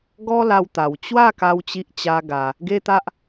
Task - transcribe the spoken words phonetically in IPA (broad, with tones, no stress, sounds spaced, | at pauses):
ɡ ɔ˦ l a˦ w t̪ a˧ w t͡ɕ w a˥˧ k a˧ w t͡ɕ i˦ ʔ t͡ɕ a˦ ɡ a˧ | ɡ e˦ t̪ a˦ ʔ